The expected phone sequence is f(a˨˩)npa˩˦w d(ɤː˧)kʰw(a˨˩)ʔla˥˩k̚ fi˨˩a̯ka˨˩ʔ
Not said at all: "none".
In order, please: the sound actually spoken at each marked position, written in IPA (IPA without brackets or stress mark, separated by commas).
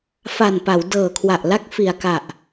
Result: a˨˩, ɤː˨˩, a˨˩